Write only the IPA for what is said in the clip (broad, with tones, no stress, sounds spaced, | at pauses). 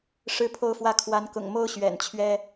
ʂ ɻ̩˦ pʰ o˦ ʊ̯ f w ä˥˨ kʰ w a˨˦ n k ʊ̰˨˩ ŋ m o˦ ʊ̯ ɕ ɥ ɛ̰˨˩ n t͡ɕʰ ɥ ɛ˦